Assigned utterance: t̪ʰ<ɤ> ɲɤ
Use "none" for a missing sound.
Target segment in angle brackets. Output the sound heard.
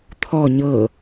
ɔ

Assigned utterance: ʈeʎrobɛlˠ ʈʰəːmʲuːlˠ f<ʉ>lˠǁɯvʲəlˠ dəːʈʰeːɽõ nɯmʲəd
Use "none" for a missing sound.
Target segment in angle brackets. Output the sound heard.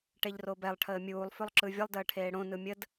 ʉ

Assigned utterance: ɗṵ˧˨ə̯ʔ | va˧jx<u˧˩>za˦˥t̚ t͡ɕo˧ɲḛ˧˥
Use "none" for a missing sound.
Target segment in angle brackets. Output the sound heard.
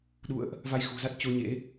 ṳ˨˩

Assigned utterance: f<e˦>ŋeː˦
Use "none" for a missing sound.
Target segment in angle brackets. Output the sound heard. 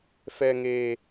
ɛ˦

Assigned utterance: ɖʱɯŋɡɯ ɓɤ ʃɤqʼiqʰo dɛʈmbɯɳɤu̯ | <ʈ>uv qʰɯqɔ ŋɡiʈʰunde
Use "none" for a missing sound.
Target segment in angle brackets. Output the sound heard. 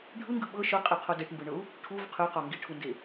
ʈʰ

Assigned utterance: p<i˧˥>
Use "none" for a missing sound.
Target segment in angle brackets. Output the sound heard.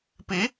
i˧˥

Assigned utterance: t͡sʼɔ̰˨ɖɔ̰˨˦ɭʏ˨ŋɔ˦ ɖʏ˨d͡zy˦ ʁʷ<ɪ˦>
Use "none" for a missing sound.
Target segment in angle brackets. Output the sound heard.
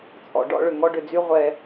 ɛ˦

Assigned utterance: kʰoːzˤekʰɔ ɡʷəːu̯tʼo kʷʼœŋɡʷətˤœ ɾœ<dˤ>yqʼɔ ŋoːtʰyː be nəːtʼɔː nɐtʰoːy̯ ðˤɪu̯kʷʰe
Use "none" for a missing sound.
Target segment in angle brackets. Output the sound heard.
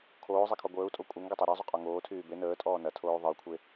zˤ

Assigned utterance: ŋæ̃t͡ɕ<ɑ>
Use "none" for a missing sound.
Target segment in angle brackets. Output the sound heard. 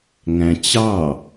ɑ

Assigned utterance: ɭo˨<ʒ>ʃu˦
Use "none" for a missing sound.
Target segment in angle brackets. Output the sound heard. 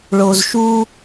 z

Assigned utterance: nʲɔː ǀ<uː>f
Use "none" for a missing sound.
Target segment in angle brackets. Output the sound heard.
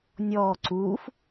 uː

